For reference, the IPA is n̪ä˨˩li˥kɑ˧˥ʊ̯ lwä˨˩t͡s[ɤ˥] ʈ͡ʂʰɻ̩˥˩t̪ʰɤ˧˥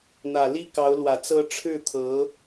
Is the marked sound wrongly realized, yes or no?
no